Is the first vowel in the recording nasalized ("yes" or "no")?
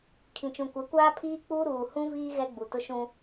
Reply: yes